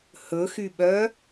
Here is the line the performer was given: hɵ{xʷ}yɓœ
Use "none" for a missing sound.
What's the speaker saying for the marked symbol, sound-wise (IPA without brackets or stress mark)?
x